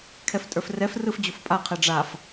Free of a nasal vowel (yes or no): yes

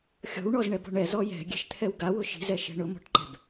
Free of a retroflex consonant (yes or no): no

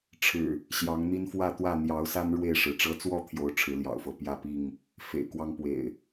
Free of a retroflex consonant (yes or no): no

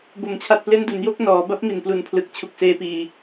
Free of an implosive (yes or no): yes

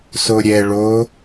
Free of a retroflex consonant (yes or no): no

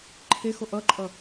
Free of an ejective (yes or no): no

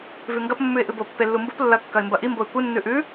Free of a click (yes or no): yes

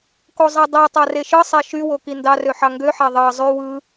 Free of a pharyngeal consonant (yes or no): no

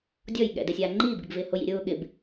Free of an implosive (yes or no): no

